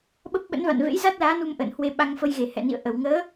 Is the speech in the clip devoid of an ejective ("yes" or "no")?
yes